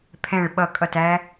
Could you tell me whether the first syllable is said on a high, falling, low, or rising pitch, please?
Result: falling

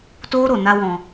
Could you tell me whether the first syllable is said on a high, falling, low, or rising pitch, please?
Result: high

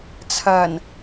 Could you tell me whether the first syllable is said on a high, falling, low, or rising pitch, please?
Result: low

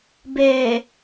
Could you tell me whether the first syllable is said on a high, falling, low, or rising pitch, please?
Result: low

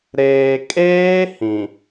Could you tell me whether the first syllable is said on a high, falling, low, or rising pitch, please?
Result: low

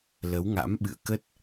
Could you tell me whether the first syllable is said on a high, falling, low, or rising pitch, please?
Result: rising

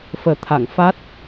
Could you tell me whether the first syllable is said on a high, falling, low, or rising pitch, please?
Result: low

